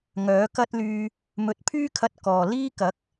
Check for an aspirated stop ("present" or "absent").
present